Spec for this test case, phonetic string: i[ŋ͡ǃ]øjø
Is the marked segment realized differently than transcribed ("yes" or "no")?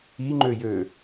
no